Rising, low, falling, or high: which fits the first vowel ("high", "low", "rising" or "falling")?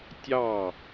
falling